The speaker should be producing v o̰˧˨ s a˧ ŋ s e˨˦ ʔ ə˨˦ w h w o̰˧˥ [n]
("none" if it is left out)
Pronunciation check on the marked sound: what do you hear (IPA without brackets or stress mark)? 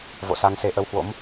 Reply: m